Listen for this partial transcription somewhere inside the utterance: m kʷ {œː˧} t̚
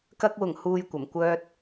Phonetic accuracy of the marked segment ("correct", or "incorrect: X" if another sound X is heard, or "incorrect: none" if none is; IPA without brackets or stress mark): incorrect: œː˥